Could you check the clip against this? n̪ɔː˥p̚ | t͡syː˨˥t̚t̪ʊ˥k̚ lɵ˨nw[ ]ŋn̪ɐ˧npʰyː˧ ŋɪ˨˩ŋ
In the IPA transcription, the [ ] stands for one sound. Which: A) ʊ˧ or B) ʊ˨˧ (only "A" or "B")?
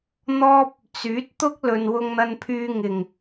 A